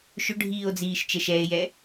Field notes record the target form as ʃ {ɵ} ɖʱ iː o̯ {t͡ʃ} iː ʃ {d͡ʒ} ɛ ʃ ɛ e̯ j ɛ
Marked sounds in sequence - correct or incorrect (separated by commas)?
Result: correct, incorrect, incorrect